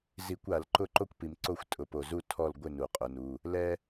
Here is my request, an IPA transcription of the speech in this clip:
z i˧˩˧ kʷ a˧˩˧ l ǃ ʊ˦˨ ǃ o˦ kʷ p i˩ m ǀ o˦˨ xʷ tʼ ʊ˩˧ p o˩ z u˦˨ tʰ ɔ˦˨ l ɡʷ ɪ˦˨ n u˩ qʼ ʊ˩˧ n u˩˧˩ | l ɛ˦

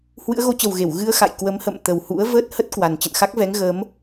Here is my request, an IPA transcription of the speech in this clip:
h w ɨ̰˧˥ ə̯ ɣ o˨˦ t͡ɕ ə˨˩ w ɣ e˧˩ w ɣ ɨ˧ ə̯ x a̰˧˨ j k w ə˨˦ m h ə̰˧˨ m t̪ ə˨˩ w h ṵ˧˥ ə̯ v əː˦˥ t̚ h ə˦˥ t̚ k w a˨˩ n t͡ɕ ə̰˧˨ n x a˦˥ k̚ v ɛ˨˦ ŋ ɣ əː˨˦ m

